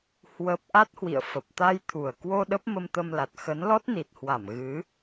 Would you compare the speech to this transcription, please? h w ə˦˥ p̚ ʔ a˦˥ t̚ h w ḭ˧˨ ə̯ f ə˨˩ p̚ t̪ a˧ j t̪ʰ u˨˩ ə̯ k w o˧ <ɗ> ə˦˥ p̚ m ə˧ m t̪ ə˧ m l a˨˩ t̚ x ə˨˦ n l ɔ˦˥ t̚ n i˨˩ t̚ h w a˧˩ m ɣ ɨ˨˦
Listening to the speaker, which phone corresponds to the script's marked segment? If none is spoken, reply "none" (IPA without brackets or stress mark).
ɗ